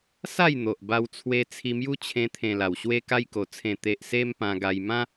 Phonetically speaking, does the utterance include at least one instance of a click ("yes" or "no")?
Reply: no